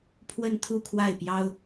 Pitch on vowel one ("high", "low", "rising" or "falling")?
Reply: falling